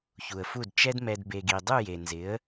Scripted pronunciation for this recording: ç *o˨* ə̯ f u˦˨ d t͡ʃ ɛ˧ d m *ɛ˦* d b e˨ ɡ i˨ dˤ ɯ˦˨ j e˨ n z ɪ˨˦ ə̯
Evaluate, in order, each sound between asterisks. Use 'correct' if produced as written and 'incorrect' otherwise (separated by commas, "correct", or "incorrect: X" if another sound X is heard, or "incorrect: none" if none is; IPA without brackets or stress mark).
incorrect: u˨, incorrect: ɛ˨